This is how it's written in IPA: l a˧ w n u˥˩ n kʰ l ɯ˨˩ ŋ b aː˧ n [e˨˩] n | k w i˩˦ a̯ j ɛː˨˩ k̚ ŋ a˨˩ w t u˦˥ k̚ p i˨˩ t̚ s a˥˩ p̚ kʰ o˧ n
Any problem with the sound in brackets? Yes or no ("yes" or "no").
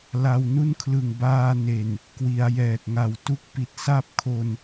no